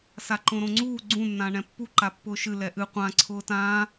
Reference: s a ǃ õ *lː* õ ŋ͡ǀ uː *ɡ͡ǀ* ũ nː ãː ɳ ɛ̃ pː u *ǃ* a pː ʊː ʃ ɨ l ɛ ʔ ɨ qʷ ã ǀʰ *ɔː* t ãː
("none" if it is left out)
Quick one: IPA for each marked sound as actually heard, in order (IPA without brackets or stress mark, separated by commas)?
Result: ɾ, ɡ͡ǀ, ǃ, ʊː